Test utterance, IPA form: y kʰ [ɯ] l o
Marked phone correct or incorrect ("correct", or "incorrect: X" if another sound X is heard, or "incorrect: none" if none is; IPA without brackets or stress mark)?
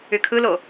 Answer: correct